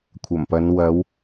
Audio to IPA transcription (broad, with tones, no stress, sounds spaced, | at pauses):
kʷʰ ɐ˨˩ m p ɐ˨˧ n w ɐ˨˧ w